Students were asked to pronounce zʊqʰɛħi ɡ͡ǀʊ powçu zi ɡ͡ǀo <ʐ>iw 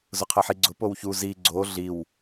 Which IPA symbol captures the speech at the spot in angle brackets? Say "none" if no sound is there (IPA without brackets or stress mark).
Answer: ɮ